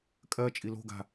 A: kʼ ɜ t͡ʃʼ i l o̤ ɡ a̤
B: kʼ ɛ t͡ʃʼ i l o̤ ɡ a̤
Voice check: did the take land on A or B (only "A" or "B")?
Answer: A